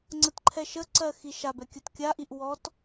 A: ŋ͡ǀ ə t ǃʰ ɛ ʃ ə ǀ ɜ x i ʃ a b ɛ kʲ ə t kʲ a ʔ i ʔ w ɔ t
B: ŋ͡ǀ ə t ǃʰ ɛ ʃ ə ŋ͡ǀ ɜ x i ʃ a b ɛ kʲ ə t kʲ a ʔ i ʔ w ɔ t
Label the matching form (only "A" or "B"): A